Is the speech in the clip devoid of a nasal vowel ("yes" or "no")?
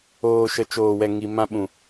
no